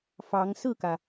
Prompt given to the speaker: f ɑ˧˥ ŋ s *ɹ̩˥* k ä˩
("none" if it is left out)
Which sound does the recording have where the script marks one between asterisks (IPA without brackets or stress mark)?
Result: ɹ̩˥˩